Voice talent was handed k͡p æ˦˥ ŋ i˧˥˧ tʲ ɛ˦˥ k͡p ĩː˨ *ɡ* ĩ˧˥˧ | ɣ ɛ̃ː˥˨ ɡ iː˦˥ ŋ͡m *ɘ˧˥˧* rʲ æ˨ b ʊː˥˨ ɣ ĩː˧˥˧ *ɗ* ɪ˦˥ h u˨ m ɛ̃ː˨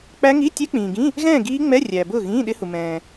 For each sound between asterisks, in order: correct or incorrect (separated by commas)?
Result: correct, incorrect, correct